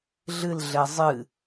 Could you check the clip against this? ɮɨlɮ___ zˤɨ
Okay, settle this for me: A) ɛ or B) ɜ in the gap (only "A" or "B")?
A